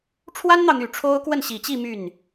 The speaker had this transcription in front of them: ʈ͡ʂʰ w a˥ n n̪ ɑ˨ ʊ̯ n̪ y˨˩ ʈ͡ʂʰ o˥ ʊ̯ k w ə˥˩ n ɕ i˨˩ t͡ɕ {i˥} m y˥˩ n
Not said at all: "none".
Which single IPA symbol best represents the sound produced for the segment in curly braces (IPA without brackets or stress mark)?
i˥˧